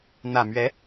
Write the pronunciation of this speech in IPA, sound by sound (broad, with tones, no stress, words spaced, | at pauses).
n̪ä˨˩mɥɛ˧˥